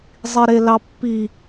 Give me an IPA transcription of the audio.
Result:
zˤ i ɾ e l ɑ pː i

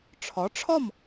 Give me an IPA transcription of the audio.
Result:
ʈ͡ʂʰ ɒ˩˥ ʈ͡ʂʰ ɒ˥˩ m

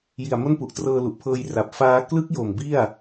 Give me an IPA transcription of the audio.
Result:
j i˨˩ a̯ m o˥˩ n p u˨˩ ʔ t r ɤː˧ l u˨˩ ʔ pʰ ɤː˧ j r a˨˩ p̚ f aː˦˥ k l ɯ˦˥ k̚ j o˨˩ m b i˥˩ a̯

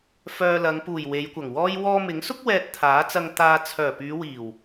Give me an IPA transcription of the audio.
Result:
f œː˧ l ɐ˨˧ ŋ p uː˨˩ j w e˨˧ j kʷ ɐ˨˩ ŋ w ɔː˥ j w ɔː˧ m ɪ˨˥ ŋ s ʊ˥ k̚ w ɛː˧ t̚ t̪ʰ aː˨˥ t͡s ɐ˧ ŋ t̪ aː˧ t͡sʰ œː˨˩ p yː˨˧ w iː˨˩ w

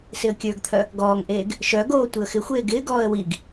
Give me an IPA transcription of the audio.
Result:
s ɪ ə̯ kʲ ə˞ ɡ t̪ʰ œ | ɡ ɔː ŋ ʔ eː ɡ | ʃ œ ɡ oː tʷ i ə̯ x ɪ xʷ eː ɡ ɪː ɡ ɔː ə̯ w i ɡ

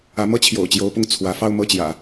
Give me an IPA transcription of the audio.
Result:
ä˧˥ m ɤ˥ t͡ɕʰ j o̰˨˩ ʊ̯ t͡ɕ j o˧˥ ʊ̯ p ʊ˥˩ ŋ t͡sʰ w ä˧˥ f ɑ˥˧ ʊ̯ m ɤ˥˩ t͡ɕ j ä̰˨˩˦

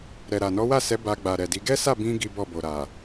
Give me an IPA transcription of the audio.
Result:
ɾ ɛ˨ ɾ a˨ n ɔ˨˦ w a˦˨ s ɛ˨˦ b a˧ ɡ͡b a˨ ɾ ɛ˨ d i˨˦ ɡ ɛ˦ s a˦˨ b ĩ˧ ɡ i˦ b ɔ˦˨ b o˨ ɾ a˨

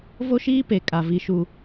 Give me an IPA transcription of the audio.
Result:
v o˦ ʃ iː˦ p e˨ kʼ a˨ v i˦ ʃ u˦

